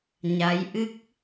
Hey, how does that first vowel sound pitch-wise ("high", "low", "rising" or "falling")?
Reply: rising